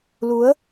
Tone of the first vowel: rising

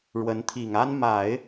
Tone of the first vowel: rising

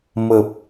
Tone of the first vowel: low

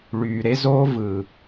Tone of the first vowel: low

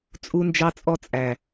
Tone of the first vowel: high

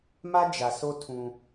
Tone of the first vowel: high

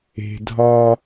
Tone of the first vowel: low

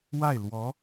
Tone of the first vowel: falling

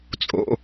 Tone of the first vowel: high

